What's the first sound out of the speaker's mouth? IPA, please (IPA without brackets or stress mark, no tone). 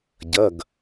ɟ